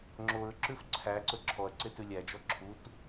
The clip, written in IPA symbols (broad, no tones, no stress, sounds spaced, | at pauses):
ŋ͡ǁ o ɹ ǁ ʉ f ǀʰ æ ǀ ɵ ǁʰ ɔ ɐ̯ ǀ e t ʉ lʲ æ d͡ʒ ɔ ǁʰ u t